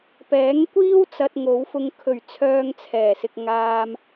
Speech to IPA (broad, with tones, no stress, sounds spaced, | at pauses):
p ɛː˨˥ ŋ kʷ iː˥ w t͡s ɐ˧ t̚ ŋ o˨˧ w f ʊ˨ ŋ kʰ ɵ˨˩ ɥ t͡sʰ œː˨ ŋ t͡sʰ ɛː˨˩ s ɪ˨ k̚ ŋ aː˧ m